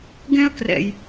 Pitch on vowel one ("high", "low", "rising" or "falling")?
high